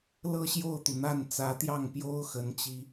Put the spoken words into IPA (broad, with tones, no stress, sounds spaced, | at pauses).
l ɤ˥˧ ɕ j o˥˩ ʊ̯ t̪ u˩ n̪ a˥˩ n t͡s ä˧˥ t̪ j ɑ˥˩ ŋ p j o˥ ʊ̯ x ə˧˥ n t͡ɕ i˧˥